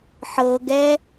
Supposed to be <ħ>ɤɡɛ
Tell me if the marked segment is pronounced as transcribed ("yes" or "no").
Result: yes